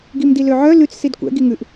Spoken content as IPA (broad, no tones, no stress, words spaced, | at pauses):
ɡimdiløʕœ lʉt͡s sidkʷɛ̰ ɡiŋʉʔ